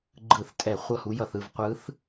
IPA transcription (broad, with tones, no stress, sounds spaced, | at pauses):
ɡ͡ǃ ɯ˧˩˧ θ tʼ ɛ˧˩˧ χʷ ʌ˥˧ h u˧˥ j ʌ˧˩˧ θ ɯ˥˧ v qʷ ɯ˧˥ θ